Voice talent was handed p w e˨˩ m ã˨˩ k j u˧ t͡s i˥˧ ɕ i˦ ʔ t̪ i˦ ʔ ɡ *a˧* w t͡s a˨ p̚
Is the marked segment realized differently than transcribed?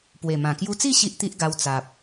no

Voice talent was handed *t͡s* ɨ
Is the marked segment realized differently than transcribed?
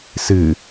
yes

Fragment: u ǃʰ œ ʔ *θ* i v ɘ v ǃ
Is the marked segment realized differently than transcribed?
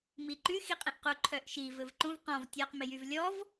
yes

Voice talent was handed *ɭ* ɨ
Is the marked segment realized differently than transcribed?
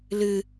yes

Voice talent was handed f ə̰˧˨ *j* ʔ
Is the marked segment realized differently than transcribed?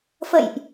no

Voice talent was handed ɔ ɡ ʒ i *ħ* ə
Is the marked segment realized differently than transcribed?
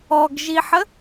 no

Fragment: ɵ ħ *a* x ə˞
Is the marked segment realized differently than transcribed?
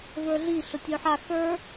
no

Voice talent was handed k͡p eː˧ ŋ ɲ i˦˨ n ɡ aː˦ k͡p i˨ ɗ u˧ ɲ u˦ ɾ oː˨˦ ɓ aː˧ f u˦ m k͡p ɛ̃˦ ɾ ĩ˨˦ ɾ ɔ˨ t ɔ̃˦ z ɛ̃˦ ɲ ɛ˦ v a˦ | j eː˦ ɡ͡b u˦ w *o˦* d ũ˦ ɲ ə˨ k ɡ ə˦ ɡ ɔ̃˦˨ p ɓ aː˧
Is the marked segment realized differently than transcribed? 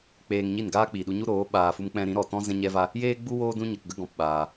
yes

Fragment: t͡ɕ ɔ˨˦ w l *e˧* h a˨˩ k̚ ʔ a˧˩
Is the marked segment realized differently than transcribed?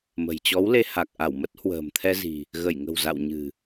no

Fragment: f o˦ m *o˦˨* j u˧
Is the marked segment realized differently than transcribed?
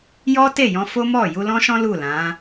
yes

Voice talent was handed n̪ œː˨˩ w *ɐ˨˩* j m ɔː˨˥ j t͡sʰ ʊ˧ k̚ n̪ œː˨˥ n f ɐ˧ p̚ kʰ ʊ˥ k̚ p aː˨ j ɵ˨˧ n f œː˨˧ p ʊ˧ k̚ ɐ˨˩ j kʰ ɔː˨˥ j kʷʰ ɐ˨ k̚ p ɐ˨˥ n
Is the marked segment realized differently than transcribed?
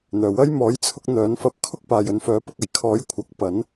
yes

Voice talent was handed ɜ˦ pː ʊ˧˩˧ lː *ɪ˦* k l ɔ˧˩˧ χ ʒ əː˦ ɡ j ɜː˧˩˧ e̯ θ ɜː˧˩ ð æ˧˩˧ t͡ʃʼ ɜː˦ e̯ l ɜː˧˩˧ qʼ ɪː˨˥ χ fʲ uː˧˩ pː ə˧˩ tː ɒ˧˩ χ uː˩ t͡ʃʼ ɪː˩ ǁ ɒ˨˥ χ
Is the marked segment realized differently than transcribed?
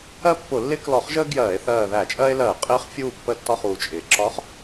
no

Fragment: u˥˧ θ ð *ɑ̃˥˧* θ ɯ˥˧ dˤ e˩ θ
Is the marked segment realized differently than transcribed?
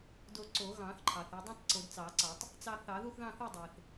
no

